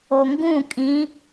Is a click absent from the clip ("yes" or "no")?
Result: yes